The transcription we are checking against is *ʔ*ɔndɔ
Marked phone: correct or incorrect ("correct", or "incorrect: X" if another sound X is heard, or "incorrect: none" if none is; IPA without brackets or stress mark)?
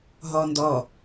incorrect: ɦ